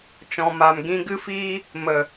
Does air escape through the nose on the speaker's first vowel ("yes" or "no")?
yes